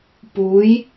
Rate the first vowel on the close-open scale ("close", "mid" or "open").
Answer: close